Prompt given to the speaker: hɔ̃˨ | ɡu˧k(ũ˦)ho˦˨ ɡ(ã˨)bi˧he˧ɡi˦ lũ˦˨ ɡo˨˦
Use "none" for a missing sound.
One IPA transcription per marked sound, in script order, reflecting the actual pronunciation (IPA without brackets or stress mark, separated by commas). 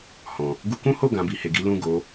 ũ˦, ã˨˦